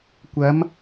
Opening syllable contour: rising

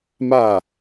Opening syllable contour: falling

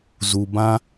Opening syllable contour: low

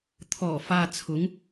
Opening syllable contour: low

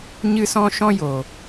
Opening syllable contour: high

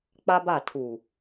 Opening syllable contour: high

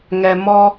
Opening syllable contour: low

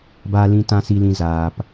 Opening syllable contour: low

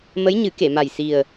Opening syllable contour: rising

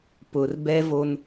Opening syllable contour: low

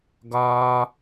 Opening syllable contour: high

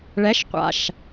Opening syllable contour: rising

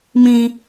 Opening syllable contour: high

